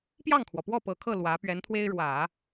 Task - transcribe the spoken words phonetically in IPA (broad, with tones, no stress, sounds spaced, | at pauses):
p j ɑ˥˩ ŋ kʰ w ɔ˩ p w ɔ˥˩ p ɤ˨˩ kʰ ɤ˥˩ l w ä˧˥ p ɥ ɛ˧˥ n t̪ʰ w e˥ ɪ̯ ɻ w ä˨˩˦